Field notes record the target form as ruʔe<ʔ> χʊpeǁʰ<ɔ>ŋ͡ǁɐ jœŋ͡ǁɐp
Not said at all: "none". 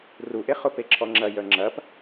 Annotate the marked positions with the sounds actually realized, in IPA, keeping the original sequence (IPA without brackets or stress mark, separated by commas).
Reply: none, ɔ